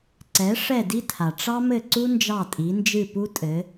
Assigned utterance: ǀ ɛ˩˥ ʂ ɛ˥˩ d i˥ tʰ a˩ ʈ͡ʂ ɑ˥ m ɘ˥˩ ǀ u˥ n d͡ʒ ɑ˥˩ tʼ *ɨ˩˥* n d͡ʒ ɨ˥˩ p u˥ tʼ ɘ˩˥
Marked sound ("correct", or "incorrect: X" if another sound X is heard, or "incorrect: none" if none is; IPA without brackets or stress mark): incorrect: i˩˥